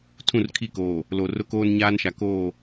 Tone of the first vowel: falling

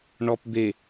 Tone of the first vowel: low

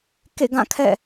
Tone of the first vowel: falling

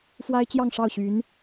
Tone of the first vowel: high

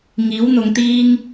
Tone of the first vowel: rising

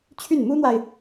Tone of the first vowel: falling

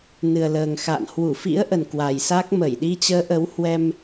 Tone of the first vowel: low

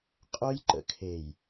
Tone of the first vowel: high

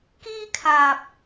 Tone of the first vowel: high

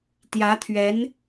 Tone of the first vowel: rising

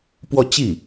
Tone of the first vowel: falling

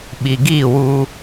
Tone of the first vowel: low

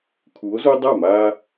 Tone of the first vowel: rising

